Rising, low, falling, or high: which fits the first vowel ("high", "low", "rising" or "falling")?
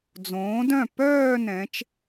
rising